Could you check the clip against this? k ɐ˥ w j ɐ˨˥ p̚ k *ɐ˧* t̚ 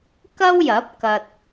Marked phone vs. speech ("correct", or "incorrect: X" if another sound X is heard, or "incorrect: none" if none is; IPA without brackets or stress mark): correct